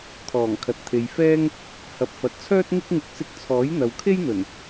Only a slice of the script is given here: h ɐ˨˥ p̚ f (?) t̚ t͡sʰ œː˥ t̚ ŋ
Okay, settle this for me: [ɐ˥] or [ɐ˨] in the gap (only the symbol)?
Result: ɐ˨